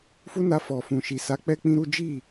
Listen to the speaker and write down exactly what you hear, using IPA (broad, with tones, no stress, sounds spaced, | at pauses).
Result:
f u˦ n a˧ f ɔ˨ f ũ˨ ʃ i˨ s a˨˦ k͡p ɛ˦ k͡p ĩ˦ ɾ u˦ d͡ʒ i˦˨